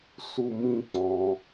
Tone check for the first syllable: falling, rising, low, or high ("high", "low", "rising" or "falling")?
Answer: high